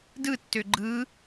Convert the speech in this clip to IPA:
d ɯ tː ø ɡ͡ǃ ɯ

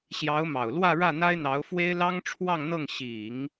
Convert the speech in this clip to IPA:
ɕ j ɑ˧˥ ʊ̯ m ɑ˨˩ ʊ̯ l w ä˥˧ ɻ ä˥˩ n̪ a˥ ɪ̯ n̪ ɑ˧˥ ʊ̯ f w e˥ ɪ̯ l ɑ˥ ŋ ʈ͡ʂʰ w ɑ˥˧ ŋ n̪ ɤ˥˩ ŋ ɕ i˨˩˦ ŋ

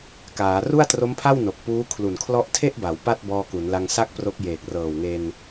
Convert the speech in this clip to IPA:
k aː˩˦ r u˥˩ a̯ t r o˦˥ m pʰ a˥˩ w n o˨˩ k̚ p uː˦˥ kʰ l u˨˩ n kʰ l ɔ˥˩ ʔ tʰ e˥˩ ʔ b a˩˦ w p a˥˩ t̚ b ɔː˧ k u˩˦ n l a˧ ŋ s a˥˩ k̚ p r o˦˥ k̚ j eː˨˩ k̚ r ɤː˨˩ w ŋ e˧ n

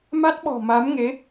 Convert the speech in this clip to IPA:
m a˦˥ t̚ ɓ ɔ̤˨˩ m a˨˦ m ŋ e˨˦

